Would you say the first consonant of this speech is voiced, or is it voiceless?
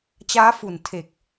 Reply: voiceless